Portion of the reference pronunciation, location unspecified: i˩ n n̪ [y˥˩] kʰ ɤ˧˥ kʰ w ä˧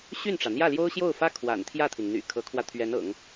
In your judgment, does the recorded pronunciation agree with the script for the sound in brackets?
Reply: no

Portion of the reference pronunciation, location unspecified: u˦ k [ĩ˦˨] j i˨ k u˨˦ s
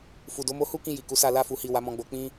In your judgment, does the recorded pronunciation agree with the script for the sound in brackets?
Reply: no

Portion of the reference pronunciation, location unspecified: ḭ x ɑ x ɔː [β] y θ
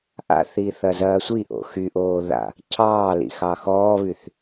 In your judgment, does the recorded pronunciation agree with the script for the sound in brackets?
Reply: yes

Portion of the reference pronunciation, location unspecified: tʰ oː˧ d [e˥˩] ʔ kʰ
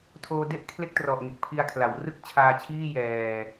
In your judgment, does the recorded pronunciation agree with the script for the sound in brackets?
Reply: yes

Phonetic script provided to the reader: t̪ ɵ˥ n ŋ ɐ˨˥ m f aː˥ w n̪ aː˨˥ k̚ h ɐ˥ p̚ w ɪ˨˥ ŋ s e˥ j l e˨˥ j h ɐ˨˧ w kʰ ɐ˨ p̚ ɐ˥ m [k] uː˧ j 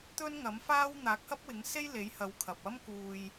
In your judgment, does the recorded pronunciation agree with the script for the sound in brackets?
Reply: yes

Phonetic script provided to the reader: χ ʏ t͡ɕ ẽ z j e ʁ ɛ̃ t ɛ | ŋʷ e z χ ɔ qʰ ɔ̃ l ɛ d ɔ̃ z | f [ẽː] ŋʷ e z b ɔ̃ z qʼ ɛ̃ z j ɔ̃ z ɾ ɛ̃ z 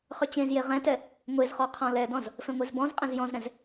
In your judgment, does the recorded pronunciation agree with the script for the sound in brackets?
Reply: no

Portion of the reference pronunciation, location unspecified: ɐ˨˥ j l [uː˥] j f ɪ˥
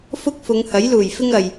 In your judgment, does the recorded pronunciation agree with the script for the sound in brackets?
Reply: no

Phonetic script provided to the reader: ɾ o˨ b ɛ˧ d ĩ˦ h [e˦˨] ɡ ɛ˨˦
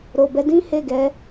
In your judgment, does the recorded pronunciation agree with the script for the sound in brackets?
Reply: yes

